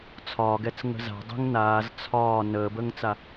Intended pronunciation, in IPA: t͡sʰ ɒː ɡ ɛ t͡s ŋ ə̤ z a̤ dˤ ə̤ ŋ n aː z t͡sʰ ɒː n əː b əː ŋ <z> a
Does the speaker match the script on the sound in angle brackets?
no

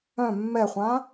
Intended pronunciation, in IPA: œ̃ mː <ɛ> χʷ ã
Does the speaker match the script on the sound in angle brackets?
yes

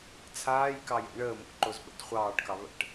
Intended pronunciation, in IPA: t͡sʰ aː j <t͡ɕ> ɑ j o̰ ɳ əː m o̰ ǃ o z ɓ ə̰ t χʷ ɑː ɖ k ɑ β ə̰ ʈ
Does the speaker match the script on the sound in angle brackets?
no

